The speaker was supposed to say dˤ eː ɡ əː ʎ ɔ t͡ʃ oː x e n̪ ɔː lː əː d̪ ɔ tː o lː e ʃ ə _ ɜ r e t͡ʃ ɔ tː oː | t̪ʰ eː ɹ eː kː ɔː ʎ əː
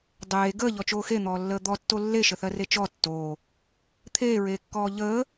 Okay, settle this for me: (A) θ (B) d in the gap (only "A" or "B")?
A